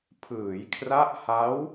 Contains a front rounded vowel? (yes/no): no